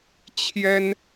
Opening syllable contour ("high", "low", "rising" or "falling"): high